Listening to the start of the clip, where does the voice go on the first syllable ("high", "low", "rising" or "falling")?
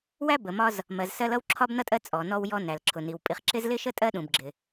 high